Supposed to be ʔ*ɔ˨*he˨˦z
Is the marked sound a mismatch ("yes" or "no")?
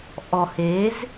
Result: no